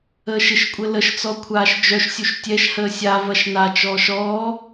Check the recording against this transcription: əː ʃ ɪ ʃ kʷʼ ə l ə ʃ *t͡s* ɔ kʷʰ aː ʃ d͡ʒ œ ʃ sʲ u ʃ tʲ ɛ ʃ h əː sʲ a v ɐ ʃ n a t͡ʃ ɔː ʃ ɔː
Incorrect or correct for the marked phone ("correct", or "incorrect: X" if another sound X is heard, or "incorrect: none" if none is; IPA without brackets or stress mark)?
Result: correct